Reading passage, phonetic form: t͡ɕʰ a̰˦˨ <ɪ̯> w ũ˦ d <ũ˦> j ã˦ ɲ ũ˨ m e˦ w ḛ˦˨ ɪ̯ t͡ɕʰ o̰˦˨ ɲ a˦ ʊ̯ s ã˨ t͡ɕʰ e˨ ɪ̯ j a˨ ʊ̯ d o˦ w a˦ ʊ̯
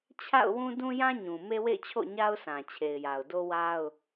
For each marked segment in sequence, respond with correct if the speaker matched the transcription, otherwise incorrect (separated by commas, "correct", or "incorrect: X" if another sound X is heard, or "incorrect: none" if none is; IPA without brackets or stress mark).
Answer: incorrect: ʊ̯, correct